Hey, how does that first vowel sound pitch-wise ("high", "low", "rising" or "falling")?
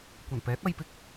low